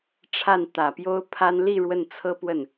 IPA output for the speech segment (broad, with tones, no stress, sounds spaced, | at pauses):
ʈ͡ʂʰ a˥˩ n t̪ ä˨˩ p j o˥ ʊ̯ pʰ a˥ n l i˥˧ ɻ w ə˥˩ n t͡sʰ ɤ˥ p w ə˥˩ n